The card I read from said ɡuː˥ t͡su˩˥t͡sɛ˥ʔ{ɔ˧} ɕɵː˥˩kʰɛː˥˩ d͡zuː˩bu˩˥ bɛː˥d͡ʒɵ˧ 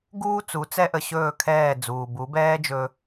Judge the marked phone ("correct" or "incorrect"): incorrect